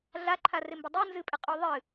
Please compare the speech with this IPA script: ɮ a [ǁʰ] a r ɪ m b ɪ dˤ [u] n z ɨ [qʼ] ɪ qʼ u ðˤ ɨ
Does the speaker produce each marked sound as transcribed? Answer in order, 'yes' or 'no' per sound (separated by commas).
no, yes, no